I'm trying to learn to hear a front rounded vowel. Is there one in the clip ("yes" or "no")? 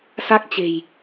no